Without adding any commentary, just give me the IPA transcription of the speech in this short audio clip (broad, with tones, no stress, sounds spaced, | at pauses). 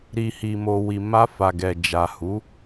ɾ i˨ h i˨ m o˨ w i˨ m a˧ f a˨ ɡ ɛ˨ d͡ʒ a˨ h u˨˦